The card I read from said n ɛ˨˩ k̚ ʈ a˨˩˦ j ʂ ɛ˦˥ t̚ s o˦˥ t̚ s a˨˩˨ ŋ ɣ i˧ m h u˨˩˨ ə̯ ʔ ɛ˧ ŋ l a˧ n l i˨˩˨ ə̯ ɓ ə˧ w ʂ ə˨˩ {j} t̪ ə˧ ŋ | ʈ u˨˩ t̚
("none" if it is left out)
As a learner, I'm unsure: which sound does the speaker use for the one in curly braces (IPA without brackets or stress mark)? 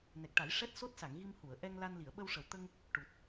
w